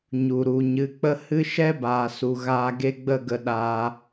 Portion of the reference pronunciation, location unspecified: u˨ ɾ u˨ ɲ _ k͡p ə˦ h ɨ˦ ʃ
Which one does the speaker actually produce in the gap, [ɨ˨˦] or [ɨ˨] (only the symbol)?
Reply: ɨ˨˦